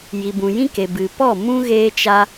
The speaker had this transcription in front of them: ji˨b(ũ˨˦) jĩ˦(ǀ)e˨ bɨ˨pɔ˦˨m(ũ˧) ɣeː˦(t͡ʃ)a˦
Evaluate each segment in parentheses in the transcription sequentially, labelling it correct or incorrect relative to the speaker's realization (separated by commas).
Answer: incorrect, incorrect, incorrect, correct